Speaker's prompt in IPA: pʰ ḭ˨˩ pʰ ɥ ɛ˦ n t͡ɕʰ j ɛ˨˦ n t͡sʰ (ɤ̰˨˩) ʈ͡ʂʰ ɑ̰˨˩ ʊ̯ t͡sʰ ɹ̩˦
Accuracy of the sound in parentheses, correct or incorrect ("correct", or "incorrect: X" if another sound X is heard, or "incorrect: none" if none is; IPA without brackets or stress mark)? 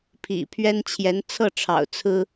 incorrect: ɤ˥˨